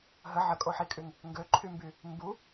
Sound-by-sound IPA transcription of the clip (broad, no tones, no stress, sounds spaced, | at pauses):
ɦ ə ʕ ə kʼ o ħ i kʼ y ŋ | ŋ ɡ ø ǃʰ y m b y | m b u